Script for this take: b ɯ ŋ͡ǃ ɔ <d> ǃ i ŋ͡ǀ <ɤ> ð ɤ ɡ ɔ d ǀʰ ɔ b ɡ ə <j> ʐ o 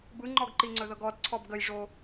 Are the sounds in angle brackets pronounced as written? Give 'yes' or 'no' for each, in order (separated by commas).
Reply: no, no, yes